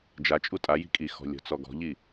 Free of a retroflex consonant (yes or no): yes